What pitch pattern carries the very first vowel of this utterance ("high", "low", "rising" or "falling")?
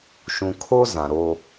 low